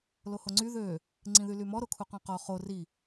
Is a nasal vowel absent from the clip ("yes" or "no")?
no